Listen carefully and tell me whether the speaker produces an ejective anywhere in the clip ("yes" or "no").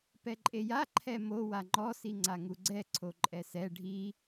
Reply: yes